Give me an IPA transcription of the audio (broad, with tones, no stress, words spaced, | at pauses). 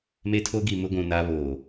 me˦tʰo˦ɡi˨mʊ˦ ɡʷũ˨na˦ βoː˨